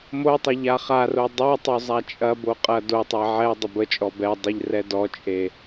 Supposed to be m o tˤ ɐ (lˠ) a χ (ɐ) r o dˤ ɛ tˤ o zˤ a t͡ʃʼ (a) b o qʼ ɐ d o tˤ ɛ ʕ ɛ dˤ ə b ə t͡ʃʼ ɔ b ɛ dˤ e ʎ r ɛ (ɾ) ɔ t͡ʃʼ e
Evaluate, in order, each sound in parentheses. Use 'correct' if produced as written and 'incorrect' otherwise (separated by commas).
incorrect, incorrect, incorrect, incorrect